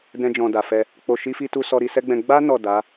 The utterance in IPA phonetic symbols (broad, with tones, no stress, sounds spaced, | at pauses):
d ɛ̃˧ d͡ʒ ɔ̃˨ d a˨ f ɛ˧ | k͡p o˨ ʃ i˧ f i˧ t u˧ s ɔ˧ ɾ i˧ s ɛ˦ ɡ͡b ɛ̃˧ ɡ͡b a˦ n ɔ˦˨ d a˨˦